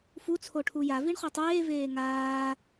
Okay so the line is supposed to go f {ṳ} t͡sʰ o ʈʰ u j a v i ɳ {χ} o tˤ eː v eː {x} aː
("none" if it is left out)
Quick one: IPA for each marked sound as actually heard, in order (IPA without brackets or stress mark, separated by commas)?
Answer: u, χ, ŋ